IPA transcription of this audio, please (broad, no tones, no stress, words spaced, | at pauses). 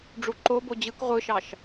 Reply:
ɖ͡ʐuǃobo d͡ʑɯk ʁʷɯʃɑʃ